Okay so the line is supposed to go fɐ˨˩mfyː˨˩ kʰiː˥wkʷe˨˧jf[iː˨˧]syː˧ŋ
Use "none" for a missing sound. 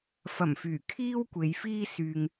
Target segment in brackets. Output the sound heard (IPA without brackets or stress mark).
iː˥